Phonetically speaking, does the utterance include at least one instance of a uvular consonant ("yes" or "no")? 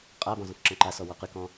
yes